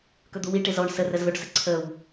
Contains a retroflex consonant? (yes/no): yes